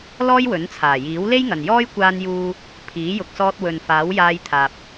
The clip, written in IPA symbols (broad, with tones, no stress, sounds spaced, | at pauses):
l ɔː˥ j w ɵ˨˥ n t͡sʰ aː˨˩ j iː˨˥ w l e˥ j ŋ ɐ˨ n j ɔː˥ j kʷ aː˧ n j uː˧ | pʰ iː˨˥ j ʊ˨ k̚ s ɔː˧ t̚ w ɵ˨ n f aː˨˥ w j aː˧ j t̪ʰ aː˨ p̚